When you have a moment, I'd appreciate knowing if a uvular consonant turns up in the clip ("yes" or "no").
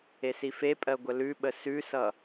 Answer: no